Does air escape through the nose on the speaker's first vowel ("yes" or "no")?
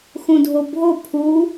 yes